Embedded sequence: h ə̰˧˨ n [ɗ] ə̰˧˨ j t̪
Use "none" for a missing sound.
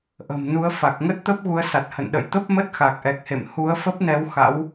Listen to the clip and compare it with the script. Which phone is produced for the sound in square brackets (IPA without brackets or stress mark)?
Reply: ɗ